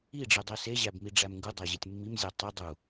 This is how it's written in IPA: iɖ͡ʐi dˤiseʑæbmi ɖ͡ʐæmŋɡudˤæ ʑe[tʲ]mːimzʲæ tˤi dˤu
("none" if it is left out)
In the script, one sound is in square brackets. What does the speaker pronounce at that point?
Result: tʲ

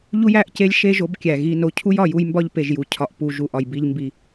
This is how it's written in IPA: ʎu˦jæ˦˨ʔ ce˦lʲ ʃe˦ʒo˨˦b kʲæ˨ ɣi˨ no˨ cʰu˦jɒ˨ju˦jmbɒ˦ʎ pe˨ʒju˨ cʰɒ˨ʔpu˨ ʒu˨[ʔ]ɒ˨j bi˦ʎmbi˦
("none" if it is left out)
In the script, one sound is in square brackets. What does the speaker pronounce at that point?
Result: ʔ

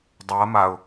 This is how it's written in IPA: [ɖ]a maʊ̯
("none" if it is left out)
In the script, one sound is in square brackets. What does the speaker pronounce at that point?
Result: dˤ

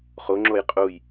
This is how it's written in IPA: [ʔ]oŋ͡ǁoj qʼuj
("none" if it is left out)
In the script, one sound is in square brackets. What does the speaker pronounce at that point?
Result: χ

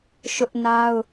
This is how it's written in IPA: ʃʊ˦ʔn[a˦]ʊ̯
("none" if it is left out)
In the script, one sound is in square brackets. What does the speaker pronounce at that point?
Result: a˦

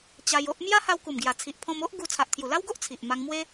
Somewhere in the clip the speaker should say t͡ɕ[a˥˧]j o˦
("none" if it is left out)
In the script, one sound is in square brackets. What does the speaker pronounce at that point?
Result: a˧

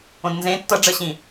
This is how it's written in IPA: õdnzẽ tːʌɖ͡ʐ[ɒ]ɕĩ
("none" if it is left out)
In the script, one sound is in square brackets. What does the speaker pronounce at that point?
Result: ʌ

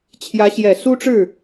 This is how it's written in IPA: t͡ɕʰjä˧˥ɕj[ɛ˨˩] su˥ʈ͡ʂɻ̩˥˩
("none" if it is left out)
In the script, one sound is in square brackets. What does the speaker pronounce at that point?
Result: ɛ˨˩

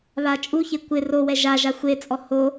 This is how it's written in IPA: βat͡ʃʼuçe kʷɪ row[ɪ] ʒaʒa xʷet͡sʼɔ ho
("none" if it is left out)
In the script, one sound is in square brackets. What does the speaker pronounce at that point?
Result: ɛ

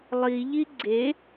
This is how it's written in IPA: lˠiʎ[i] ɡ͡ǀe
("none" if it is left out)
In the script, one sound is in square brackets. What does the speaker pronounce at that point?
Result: i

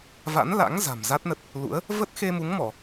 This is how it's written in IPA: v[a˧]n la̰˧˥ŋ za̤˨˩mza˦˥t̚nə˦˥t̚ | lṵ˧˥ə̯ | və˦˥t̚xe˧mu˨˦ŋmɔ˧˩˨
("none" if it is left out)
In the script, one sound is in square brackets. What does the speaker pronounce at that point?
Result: a̰˧˥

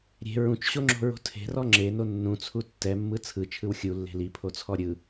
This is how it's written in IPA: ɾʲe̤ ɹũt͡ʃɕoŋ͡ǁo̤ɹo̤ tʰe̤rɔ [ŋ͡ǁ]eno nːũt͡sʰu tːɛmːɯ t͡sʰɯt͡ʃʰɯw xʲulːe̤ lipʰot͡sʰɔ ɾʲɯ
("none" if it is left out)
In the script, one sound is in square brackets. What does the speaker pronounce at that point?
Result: ŋ͡ǁ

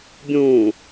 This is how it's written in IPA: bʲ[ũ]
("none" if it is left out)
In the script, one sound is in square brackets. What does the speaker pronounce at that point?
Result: ũ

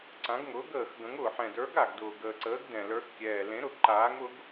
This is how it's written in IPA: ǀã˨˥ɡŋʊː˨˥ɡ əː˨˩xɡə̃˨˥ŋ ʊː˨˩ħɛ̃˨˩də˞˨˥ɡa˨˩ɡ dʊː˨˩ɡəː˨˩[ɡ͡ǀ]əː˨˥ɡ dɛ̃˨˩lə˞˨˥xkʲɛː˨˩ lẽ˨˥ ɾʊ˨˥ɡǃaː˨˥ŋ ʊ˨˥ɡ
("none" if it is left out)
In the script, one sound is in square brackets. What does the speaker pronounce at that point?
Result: ǀ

